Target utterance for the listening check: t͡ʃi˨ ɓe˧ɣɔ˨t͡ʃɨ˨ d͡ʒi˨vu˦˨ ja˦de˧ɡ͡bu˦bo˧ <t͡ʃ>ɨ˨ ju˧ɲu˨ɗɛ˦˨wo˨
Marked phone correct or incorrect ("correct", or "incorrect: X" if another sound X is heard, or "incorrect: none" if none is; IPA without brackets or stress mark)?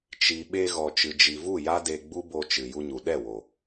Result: correct